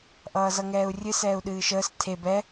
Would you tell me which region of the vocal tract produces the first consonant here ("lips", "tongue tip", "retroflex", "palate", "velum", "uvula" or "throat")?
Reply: throat